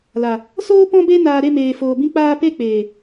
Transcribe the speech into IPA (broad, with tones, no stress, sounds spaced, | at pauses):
l a˨ | s oː˦ p ɔ̃˦ b e˦ n aː˧ ɾ e˦˨ m eː˨ f oː˨ b ĩ˧ k͡p aː˧ p e˦˨ k͡p eː˨